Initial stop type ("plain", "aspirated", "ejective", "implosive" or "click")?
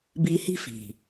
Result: plain